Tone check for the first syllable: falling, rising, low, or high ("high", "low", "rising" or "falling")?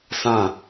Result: falling